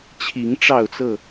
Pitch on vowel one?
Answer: rising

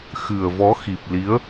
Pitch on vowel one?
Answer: low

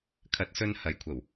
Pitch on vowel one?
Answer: rising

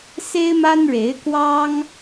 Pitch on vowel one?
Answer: high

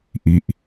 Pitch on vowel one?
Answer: low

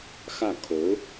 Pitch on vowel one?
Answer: falling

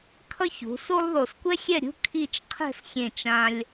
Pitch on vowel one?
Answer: high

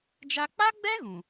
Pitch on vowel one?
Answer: high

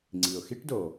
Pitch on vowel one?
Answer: low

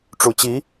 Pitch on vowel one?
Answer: low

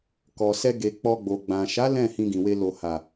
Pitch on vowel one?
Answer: low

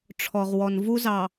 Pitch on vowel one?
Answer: low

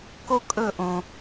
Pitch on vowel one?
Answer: high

